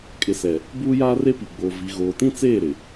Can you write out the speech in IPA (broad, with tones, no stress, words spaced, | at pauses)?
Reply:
kʼɪ˨ sɛ˨ | buː˦jaː˦re˦pi˨ ɡ͡bo˨ vi˨ɣoː˨tĩ˦ t͡seː˦˨ɾɪ˨